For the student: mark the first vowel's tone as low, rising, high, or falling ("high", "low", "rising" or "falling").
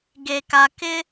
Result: low